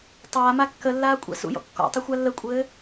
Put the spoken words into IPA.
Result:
tˤ aː m a kː ə lː aː kʷʼ a̰ s ṵ j ɔ̰ kː ɔ̰ tˤ ə xʷ a lː ə kʷʼ ɘː

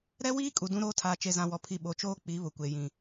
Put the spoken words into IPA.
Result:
ɾ ɛ˦ w iː˦ kʼ u˨ d ũ˦ ɾ oː˦ tʰ aː˨ t͡ʃ e˨ z ã˨ w ɔ˨ pʰ i˨ ɓ o˨ t͡ʃ oː˦ k͡p i˨˦ β ʊ˨ kʷ e˨ j ĩ˨

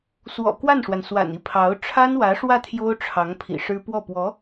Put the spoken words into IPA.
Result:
s w ɔ̰˨˩ k w a˥˩ n ʂ w a˩ n s w a̰˨˩ n i˥˩ pʰ ɑ˧˥ ʊ̯ ʈ͡ʂʰ a˥ n w ä˧˥ ʂ w ä˥˩ t̪ʰ j o˥ ʊ̯ ʈ͡ʂʰ ɑ˧˥ ŋ pʰ ḭ˨˩ ʂ ɻ̩˥ p w ɔ˥˩ p w ɔ˧˥

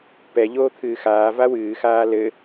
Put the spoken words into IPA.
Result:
p ɛ ʎ oː t̪ʰ ɨː x aː v a w ɨː x aː l ɘ

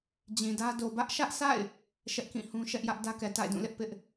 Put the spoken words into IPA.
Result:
d͡ʑ ĩ˨ d ä˦ d o˨ b ä˦ ʔ ʃ ä˦ ʔ s a̰˦˨ ɪ̯ | ʃ ɛ˦ ʔ k ĩ˦˨ h ũ˦ ʃ ɛ˦ ʔ j ä˦ ʔ d ä˦ k ɛ˨ t a̰˦˨ ɪ̯ d ũ˦˨ l ɪ˦ ʔ p ɪ˦ ʔ

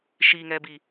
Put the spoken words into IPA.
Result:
ʃ i ŋ ɛ b i

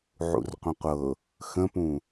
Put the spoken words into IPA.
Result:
ʕ ṵ r qʷ ə̃ qʷ ɤ | x ə̃ p ũ

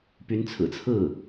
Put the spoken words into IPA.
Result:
p y˧˥ n t͡sʰ ɹ̩˨˩ t͡sʰ ɹ̩˥˩

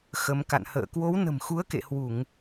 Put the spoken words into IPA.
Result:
x ə˨˦ m k a̰˧˨ n h ə̰ː˧˨ k w o˨˦ w n ə̤˨˩ m x u˨˦ ə̯ k ḛ˧˨ h w u˧˩˨ ŋ

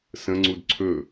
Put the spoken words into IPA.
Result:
s ə̃ ŋ͡ǀ u d ǀʰ ɵ

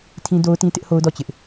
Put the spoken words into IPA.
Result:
tʰ ĩ˦ d o˦ ʊ̯ t ĩ˦ t ɪ˦ ʔ h o˦ ʊ̯ d ɔ˦˨ t͡ɕ ɪ˦ ʔ

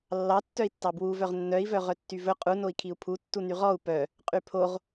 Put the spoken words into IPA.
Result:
lː ɑ tː œ i̯ tː ɑ b w u v œ ʁ nː œ i̯ v œ ʁ œ tː y v ɵ qʼ u n o i̯ kʰ i u̯ pʰ u tː u n y ʁ ɔ u̯ p œ | qʼ y pʰ o ʁ

